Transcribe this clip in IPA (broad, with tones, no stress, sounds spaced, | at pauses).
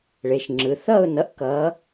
ɭ e˩˧˩ ʃ ŋ͡ǁ ɯ˩˧˩ θ ʌ˥˨ ʊ̯ n ʌ˨˦ ʔ k ʌː˨˦